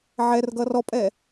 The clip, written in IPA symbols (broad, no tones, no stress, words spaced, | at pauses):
ʕɛrɡʌ rɔpʼɛ